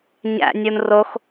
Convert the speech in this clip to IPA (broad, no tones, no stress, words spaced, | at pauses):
ɲæ̰ nʲunrox